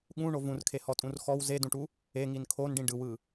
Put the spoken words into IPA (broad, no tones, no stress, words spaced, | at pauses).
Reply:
ɠũɳo vũrkʰehɔtʼũr xɔw zedũʈu | eŋin kʰonɖĩ ɖɯwɯ